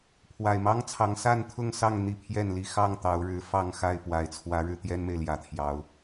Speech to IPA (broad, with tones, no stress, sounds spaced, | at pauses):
pʰ w a˨˩ ɪ̯ m ɑ˦ ŋ t͡sʰ ɑ˨˦ ŋ s a˥˨ n t̪ʰ ʊ˥˨ ŋ s ɑ˥˨ ŋ n̪ i˥˨ pʰ j ɛ˥˨ n l i˥˨ x ɑ˥˨ ŋ t̪ ɑ˨˦ ʊ̯ ɻ ɻ̩˨˦ f ɑ˥˨ ŋ x a˥˨ ɪ̯ p w a˨˩ ɪ̯ t͡sʰ w ä˨˦ ɻ ɻ̩˧ t̪ j ɛ˦ n m e˨ ɪ̯ l j ä˨˩ t̪ʰ j ɑ˨˦ ʊ̯